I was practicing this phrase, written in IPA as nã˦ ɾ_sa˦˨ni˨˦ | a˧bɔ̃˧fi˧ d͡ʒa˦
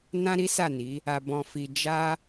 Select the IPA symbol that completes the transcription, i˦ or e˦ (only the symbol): i˦